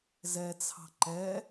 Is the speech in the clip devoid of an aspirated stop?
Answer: no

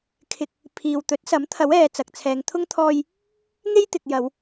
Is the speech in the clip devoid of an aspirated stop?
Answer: no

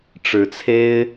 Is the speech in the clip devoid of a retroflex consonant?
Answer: no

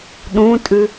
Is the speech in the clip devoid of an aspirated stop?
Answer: yes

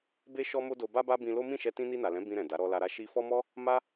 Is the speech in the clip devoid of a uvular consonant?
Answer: yes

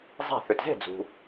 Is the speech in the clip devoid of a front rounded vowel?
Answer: no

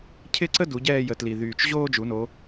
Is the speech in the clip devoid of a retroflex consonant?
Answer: yes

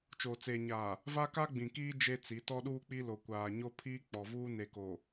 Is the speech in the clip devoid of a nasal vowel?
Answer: no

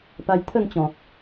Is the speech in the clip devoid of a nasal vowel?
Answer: no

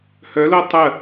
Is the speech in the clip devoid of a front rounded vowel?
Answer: no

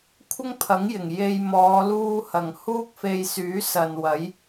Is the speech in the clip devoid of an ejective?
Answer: yes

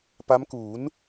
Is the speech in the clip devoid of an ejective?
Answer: yes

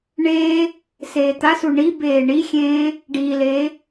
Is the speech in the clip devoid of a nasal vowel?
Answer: no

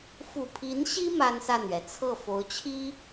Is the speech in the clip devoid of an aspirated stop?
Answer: no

